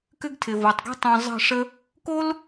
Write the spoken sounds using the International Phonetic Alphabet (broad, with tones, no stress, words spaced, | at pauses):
kʏ˦ɡtʰɪ˨vɤ˨tˤɡṳ˦ tˤõ˨ zˤə̤˦˨ʂə˦ | ko˦l